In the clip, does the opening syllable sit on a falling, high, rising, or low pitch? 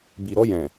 low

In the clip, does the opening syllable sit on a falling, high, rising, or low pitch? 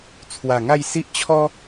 low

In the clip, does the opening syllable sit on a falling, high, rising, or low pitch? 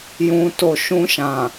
low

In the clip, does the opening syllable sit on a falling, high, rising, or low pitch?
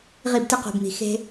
falling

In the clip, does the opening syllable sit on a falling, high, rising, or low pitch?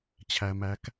low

